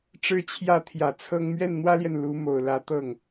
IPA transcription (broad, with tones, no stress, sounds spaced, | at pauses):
ʈ͡ʂ ɻ̩˥ t͡ɕʰ j ä˥ t̪ʰ j ä˨˩ t͡sʰ ɤ˥ ŋ m ɥ ɛ˥˩ n n̪ w ä˥ l j ɛ˨ n l u˧˥ m o˨˩ ʊ̯ l ä˧˥ t̪ ɤ˥˩ ŋ